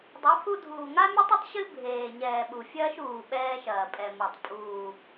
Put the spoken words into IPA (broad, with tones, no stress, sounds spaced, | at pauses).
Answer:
dˤ u˨˦ pʰ u˦ dʱ uː˨ ŋ a˦ mʲ u˦ tˤ ɨ˦ tˤ ɕ ɨ˦ bʱ eː˨ ɲ ɛː˨ ɓ u˨ fʲ ɐː˦ ʃ uː˨ ɓ ɛː˦ ʃ ɐː˨ pʼ ɛ˨ m ɔ˨ tˤ pʼ uː˨